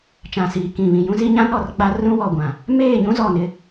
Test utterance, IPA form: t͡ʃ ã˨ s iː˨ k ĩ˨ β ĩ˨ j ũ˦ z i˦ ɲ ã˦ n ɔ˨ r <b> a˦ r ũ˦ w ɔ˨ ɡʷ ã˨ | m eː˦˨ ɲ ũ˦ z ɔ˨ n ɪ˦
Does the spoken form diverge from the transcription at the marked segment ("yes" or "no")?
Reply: yes